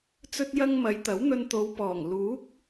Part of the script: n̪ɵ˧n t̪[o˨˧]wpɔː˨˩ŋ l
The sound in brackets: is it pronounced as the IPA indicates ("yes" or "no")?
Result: yes